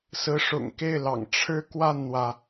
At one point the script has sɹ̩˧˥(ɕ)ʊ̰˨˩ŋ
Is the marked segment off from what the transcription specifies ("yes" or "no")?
yes